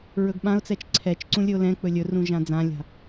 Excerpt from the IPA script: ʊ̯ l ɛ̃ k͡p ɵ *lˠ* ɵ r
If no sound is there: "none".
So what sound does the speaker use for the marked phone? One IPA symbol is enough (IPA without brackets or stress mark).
lʲ